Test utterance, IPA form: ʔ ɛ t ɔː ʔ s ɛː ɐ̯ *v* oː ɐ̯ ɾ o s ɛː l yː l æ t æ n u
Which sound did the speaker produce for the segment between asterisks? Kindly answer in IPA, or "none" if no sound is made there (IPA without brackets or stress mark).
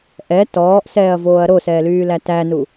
v